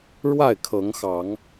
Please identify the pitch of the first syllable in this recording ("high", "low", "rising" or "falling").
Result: falling